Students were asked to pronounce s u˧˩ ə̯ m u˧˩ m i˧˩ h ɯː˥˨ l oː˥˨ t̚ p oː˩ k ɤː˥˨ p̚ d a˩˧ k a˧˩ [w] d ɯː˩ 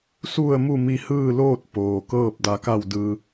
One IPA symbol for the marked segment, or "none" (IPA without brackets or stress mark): w